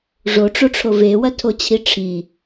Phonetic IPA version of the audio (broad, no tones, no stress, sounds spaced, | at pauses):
ʐ o ʈ͡ʂ o ʈ͡ʂʰ o v e w ɐ tʰ o t͡ɕʰ i ʈ͡ʂʰ i